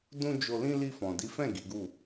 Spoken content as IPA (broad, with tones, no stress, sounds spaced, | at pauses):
d ũ˦ d͡ʒ o˧ l ĩ˦ l i˧ f ɔ̃˨ d i˨˦ f ɛ̃˦˨ ɡ i˨˦ ɡ u˦˨